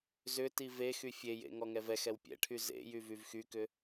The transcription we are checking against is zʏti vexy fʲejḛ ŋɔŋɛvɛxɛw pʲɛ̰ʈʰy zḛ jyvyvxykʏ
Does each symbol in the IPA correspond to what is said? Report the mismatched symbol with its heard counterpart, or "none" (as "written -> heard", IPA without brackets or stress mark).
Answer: none